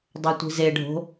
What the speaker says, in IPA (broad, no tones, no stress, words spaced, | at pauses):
dˤotʷi̤zeɖʱo̤